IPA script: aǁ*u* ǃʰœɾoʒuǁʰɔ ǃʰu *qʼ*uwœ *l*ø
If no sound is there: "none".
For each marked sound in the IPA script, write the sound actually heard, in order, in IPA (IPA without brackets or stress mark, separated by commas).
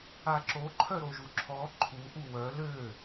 o, ʔ, l